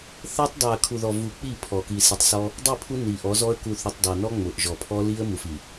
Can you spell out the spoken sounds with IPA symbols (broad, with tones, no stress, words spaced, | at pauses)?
θɛ˦tˤ dˤo˨ə̯kʰu˨ðɔ˨ vu˨ k͡pi˦˨pʰɔ˨ ki˨si˨tˤsɔ˦ | dˤi˦˨pʰu˦ ni˨ʔɔ˨˦zɔ˦ə̯ ku˨θʊ˨tˤ dˤɛ˨nɔ˦ ŋ͡mʊ˨ʔʒɔ˨pʰɔ˦li˦ə̯ mu˨fi˨